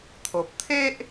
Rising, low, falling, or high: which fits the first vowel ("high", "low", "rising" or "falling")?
low